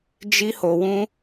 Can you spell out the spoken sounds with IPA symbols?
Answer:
d͡ʒ i˦ h o˧ w ũ˦

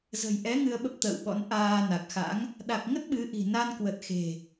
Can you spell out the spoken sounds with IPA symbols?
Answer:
z ə̤˨˩ j ʔ ɛ˨˦ ŋ ɨ˧ ə̯ ɓ ə˦˥ p̚ t̪ ə̰ː˧˨ w ɓ ɔ̰˧˥ n ʔ aː˧ n a˨˩ k̚ x a̰˧˥ ŋ | ɗ a˨˩ k̚ ŋ ə˦˥ t̚ ɓ ɨ˨˦ ʔ i̤˨˩ n a˧ n k w ə˨˩ t̚ x e̤˨˩

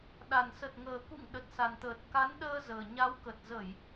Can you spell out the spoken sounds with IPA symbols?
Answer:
ɗ a˨˩ n s ə˨˩ t̚ ŋ əː˨˩ k ṵ˧˨ ŋ ɗ ə˨˩ t̚ s a˨˩ n t̪ əː˨˩ t̚ k a˨˦ n ɗ əː˧ z əː˨˩ ɲ a˨˦ w k ə˨˩ t̚ z ə˧˩˨ j

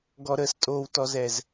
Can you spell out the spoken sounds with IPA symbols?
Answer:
ɡ ɔ˨ ɾ əː˨ s tʼ oː˨ w t ɔ˨ z ɛ˨ z

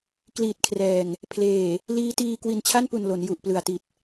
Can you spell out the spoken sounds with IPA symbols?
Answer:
k l iː˨˩ t̚ kʰ r ɛː˨˩ ŋ | pʰ l eː˨˩ | l iː˦˥ t iː˧ k w i˨˩ n t͡ɕʰ a˥˩ n p u˨˩ n l o˩˦ n j u˨˩ ʔ p l ɯ˨˩ a̯ t i˨˩ t̚

